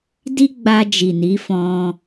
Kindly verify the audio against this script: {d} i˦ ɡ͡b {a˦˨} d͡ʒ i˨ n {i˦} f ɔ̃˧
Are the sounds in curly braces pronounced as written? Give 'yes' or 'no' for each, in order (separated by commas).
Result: yes, no, no